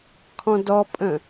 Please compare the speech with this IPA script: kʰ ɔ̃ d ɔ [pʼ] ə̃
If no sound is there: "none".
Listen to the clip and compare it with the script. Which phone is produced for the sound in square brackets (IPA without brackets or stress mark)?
pʼ